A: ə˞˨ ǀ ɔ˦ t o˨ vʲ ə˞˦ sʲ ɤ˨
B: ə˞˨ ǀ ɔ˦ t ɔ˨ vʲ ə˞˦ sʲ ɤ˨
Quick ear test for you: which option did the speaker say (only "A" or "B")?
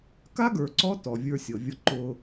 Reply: B